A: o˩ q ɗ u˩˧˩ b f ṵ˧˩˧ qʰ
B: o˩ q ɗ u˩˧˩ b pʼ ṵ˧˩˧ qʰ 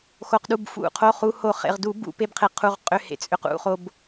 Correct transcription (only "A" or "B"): A